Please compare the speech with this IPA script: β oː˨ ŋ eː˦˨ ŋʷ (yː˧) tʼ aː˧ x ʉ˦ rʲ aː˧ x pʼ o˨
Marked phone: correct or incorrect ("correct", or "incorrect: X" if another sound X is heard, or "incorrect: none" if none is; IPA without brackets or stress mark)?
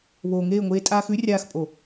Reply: incorrect: eː˧